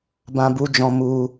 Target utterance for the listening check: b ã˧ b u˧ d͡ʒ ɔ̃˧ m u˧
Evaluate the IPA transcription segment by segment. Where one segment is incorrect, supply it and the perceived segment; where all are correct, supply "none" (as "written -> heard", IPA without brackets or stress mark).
none